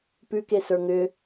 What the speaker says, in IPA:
pʉkesə˞ ŋʏ

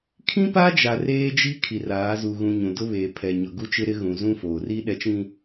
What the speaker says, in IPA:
kʰĩ˦pa˦d͡ʒa˨ reː˦d͡ʒi˦ kʰi˨raː˨˦zu˨ ɣũ˨ ɲũ˨dʊ˦ βeː˨ pʰɛ˨ɲʊ˨ ɡu˦ t͡ʃɪ˦ɾɪ˦ ɣũ˨ zũ˦foː˨ri˦ ɗɛ˨t͡ʃĩ˨

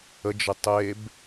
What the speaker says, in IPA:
əd͡ʒə tˤeb

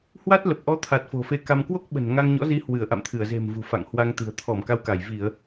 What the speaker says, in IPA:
hwa˦˥t̚ lə˨˩p̚ʔɔ˨˦t̪ʰa˨˩t̚ fo̤˨˩fe˧ka˧m kwo˦˥k̚ɓə̤˨˩n ŋa˧ŋɲɔ̰˧˥zi˨˦ hwɨ˧˩ə̯ʔa̰˧˨mt̪ʰɨ˧˩ə̯ ze̤˨˩mvṳ˨˩ fa̰˧˨ŋhwa˧ŋt̪ɨ̤˨˩ə̯ t̪ʰɔ˧˩m ka˧wka˧˩j vi˧˩˨ə̯

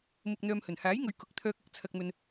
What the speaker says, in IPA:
mʊ˧k̚n̪œː˧mhɵ˨˩n haː˨˥jŋɵ˨ɥ kʊ˨˥k̚t̪ʰœː˧k̚ ɐ˨k̚t͡sʰɐ˧k̚mɵ˧n

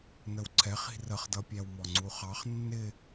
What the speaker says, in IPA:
nəwǀʰɛχi̤ rəχdʌpʲæwmɔ ŋ͡ǀuχɑχ nːɪ

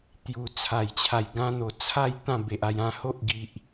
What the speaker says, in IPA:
t̪ju˨˩t͡sʰa˨˩jt͡ɕʰa˨˩j ɡã˧n̪o˨˩ t͡sʰa˥˧j t̪ã˥˧be˨ʔ a˧j ã˧ ho˦ʔɡi˨ʔ

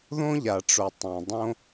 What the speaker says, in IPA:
ðõ˥ʎa˩ʈ͡ʂo˩ tˤĩ˩dˤõ˥

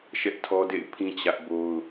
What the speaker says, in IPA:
ʃɛ˦ʔtʰɔ˦dḛ˦˨ɪ̯pʰĩ˦ t͡ɕä˦ʔbo˦ʊ̯

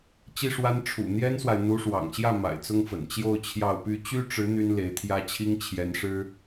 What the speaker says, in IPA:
t͡ɕi˥˩ʂwa˥n ʈ͡ʂʰṵ˨˩ n̪jɛ˥nswa˨ɪ̯ n̪u˧˥ʂwɑ̰˨˩ŋɕjä˥˩ ma̰˨˩ɪ̯t͡sʊ˥ŋfə̰˨˩n t͡ɕjo˥˧ʊ̯t͡ɕʰjɑ˥˩ʊ̯py˥ t͡ɕy˥ʈ͡ʂɻ̩˧˥ n̪y˥nle˧˥ɪ̯t̪ʰjä˥t͡ɕʰi˥ŋ t͡ɕʰjɛ˧˥nʂɻ̩˥

